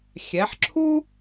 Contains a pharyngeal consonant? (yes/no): yes